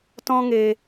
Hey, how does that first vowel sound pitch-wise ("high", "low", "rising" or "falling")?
high